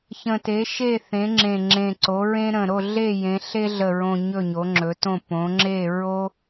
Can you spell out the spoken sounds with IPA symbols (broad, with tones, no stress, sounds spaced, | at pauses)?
ç ə̃˨˩ t e˩˧ ʃ e˦˨ θ ẽ˩˧ ŋ͡ǁ ẽ˨˩ ŋ͡ǁ ẽ˨˩ ǀ o˩˧ ɹ ẽ˦ ɾ ə̃˨˩ ɾ o˦˨ ɮ e˦˨ j ẽ˩˧ ɬ e˦ ɮ ə˨˩ ɹ õ˨˩ ɲ ɵ˦˨ ɲ o˩˧ ŋ͡ǁ ɵ˩˧ t õ˦˨ p õ˩˧ ŋ͡ǁ e˦˨ ɹ o˦